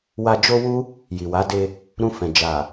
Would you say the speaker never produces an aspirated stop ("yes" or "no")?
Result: yes